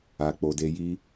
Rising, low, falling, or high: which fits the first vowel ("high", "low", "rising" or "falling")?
low